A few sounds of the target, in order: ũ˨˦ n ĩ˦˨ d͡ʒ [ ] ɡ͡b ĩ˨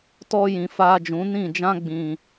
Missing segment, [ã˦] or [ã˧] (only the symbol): ã˦